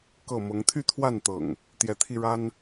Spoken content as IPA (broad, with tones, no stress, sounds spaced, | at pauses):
k ɤ˥˨ m ɤ˨˦ ŋ t̪ʰ y˥˨ t̪ʰ w a˥˨ n t̪ ɤ̰˨˩ ŋ | t̪ j ɛ˨˦ t̪ʰ i˧ ɻ a˦ n